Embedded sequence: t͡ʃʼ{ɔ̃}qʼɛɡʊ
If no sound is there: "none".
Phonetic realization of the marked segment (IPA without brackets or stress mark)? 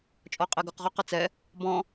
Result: ɔ